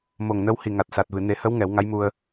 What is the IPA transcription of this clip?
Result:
m o˨˩ ŋ n ə˧ w h i˨˩ ŋ a˨˩ t̚ s a˨˩ t̚ v ɨ˨˩˨ n e˨˩˦ h ə˧˥ w ŋ ɛ˨˩˦ w ŋ a˧˥ j m u˧ ə̯

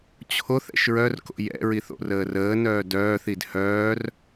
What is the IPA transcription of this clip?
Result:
t͡ɕʰ o θ ɛ̰ ʃ ɹ œ r k o̰ j ɛ̰ ɹ i θ o̰ r əː r əː n œː d œː θ i d h œː r

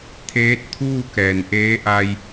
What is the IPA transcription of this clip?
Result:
t̪ʰ eː˧˥ t̚ t̪ʰ uː˥˨ k ɛː˩ n ʔ eː˧˥ ʔ a˧ j

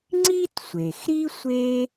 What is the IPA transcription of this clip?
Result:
ŋ͡ǀ i˥ t sʷ e˩ x ɾ i˥ sʷ e˥

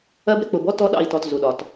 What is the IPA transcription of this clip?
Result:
ɜ˦ b ɾ ɪ˦ k͡p ʊ˨ b ɔ˦ t ɔ˦ ɗ ɑ̰˦˨ i̯ t ɔ˨ t z u˨ ɗ ɒ˨ t

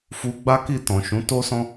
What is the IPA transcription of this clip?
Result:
f u˧ ɡ͡b a˦ k i˦˨ t ɔ̃˨ ʃ ũ˨˦ t o˦ s ɔ̃˦

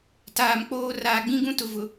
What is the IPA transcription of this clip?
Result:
t aː˨ m k͡p oː˦ r aː˨ ɡ͡b ĩ˦ ɡ ũ˦ t ʊ˨ v ʊ˨

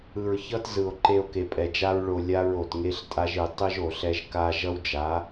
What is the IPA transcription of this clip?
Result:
ɯ˨ ɹ ç ʌ˦ t z ɯ˨ o̯ ǃ e˨ o̯ k e˨ pʼ ɛ˨ d͡ʒ a˦ ɹ ɭ o˨ lʲ a˦ ɹ o˨ t ŋ e˦ ɬ tʼ a˦ ʒ ɯ˨ tˤ ɯ˦ ʒ o˨ ɬ ɛ˦ ʒ k a˦ ʒ ʌ˦ w d͡ʒ a˨˦

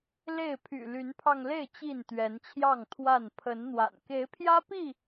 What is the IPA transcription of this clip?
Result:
l e˥˨ ɪ̯ pʰ y̰˨˩ l y˨˦ n pʰ ɑ˧ ŋ l e˥˨ ɪ̯ t͡ɕ i˥˨ n t̪ ɥ ɛ˨˦ n t͡ɕʰ j ɑ˥˨ ŋ t̪ʰ w a˥˨ n pʰ ə˨˦ n n̪ w a̰˨˩ n k e˨˦ ɪ̯ pʰ j ä˦ p i˥˨

